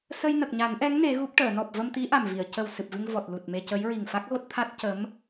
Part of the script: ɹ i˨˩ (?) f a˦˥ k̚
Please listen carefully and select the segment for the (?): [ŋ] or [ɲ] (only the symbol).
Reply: ŋ